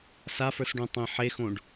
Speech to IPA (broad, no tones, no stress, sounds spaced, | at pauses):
s a f ə˞ s ɖ õ tˤ ẽ ħ e x õ ɖ